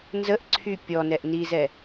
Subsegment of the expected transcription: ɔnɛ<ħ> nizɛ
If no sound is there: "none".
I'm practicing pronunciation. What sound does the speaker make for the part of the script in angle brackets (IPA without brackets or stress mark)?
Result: ʔ